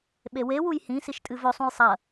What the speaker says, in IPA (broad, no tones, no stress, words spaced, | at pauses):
ɓewewuj hĩsiʃ tʼɨvɵsˤũj sˤɐ